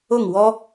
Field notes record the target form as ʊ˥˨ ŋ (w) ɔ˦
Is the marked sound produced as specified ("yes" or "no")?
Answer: yes